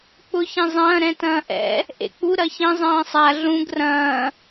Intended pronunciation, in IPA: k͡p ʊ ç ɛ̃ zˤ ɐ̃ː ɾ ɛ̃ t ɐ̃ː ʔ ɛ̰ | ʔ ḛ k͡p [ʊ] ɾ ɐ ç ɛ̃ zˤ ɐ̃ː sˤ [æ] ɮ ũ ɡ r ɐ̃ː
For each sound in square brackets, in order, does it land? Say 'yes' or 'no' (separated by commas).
no, no